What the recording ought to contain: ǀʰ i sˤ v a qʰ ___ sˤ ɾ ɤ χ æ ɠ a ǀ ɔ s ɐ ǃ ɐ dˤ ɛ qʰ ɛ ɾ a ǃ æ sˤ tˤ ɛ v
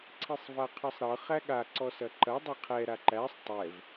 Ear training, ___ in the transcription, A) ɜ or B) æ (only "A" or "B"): A